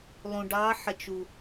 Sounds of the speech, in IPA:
lˠũ˧ɖɑ˦˥ ħə˧t͡ʃu˧

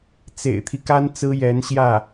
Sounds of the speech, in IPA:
t͡sḛ˨˩ɪ̯t̪ʰi˦ka˥n t͡sɹ̩˥jɛ˧˥nɕjä˥˩

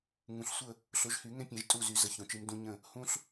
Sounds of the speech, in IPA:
ŋũ˨ɬsʷə˦˨ | ɬo˨˦ʒhy˨˩˦ŋɛ̃˦pʲɛ̃˨˩˦ʒ tʼu˦˨zy˨˩˦ zə˨˦çõ˨t͡ʃɨ˨˦m dũ˨˦ ɲə̃˦˨ | hũ˦ɬ

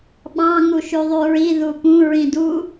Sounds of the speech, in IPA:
ɓɑ̃ ŋuʃyðˤyɹi ðupũ ɹĩdu

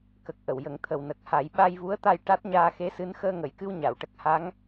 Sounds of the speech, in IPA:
kə˨˩k̚ ʔə˨˩˨wjə˨˩˦ŋ t̪ʰə˨˩wnə˨˩k̚ ha˨˩˦j ɓa˧jvu˧˥ə̯t̪a˧j ʈa˦˥t̚ ɲaː˧xe˧˥sɨ˧˥n xəː˧ŋə˨˩˨jkɨ˧w ɲa˨˩˨wʈə˦˥k̚ ha˧˥ŋ

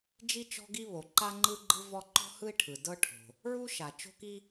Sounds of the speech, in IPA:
d͡ʒi˥t͡ʃɔ̤˥ɡi˥ βo˩ǃa˥ ŋ͡ǃɯ˥ ɡ͡ǃɯ˥vɔ˥ ǃɔ̤˥hɯ˥i̯ʈʰɯ˩ dɤ˥ʈʰo̤˩ | ɹu˥ ʃa˩ t͡ʃo̤˥ki˥

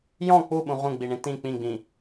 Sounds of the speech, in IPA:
jɔ̃ k͡puɓũ ʁũɡ͡biɳĩ tĩ k͡pĩɡ͡bĩ

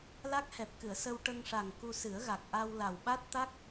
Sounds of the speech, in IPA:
la˦˥k̚hɛ˨˩p̚kɨ˨˩˨ə̯ sə˧w ʈə˧ŋʂa˨˩ŋ ku˧sɨ˨˩˦ə̯ɣa˨˩k̚ ʔa˧wla˨˩w ɓa˦˥t̚t̪a˦˥k̚

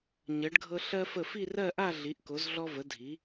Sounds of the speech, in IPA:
ɲɜ˩˧ɖɡʱɤ˧ ɬɜ˧fə˧˩ fi˥˧rɜ˥˧ʔa˥˧ ɮi˩˧ʔko˩˧zɮɔ˧və˩˧ dʱi˩˧

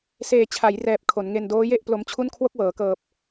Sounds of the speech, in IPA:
seː˨˩ t͡ɕʰa˩˦jrɛː˨˩p̚ kʰo˩˦nŋe˧n doː˦˥je˥˩ʔplo˧mt͡ɕʰu˥˩n kʰwo˥˩k̚wɤː˩˦kɤː˨˩p̚

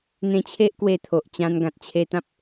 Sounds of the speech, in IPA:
n̪ẽ˧t͡ɕʰe˦ʔkwe˧ t̪ʰo˨ʔt͡ɕã˧n ɡã˨t̚t͡ɕʰe˧t̪ã˦p̚

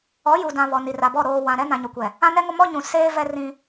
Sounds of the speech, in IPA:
ɔ˨˦ju˨dã˨ βɔ˨ni˨ra˨bɔ˦˨ ɾoː˨ wã˨ɾɛ˦ nã˨ɲo˨kʷɛ˨ | ã˦nɛ˦ŋo˦ mɔ˦ɲũ˨ seː˦ vɛ˦ rĩ˦

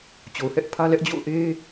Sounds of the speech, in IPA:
t͡ɕo˨ʊ̯hɛ˦ʔpʰä˦lɛ˦ʔ d͡ʑo̰˦˨ʊ̯ʔe˦

